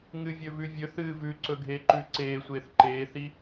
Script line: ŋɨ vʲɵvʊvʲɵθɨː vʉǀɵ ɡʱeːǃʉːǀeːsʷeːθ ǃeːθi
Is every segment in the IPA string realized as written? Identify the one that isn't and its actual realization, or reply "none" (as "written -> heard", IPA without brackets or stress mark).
ʊ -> ʉ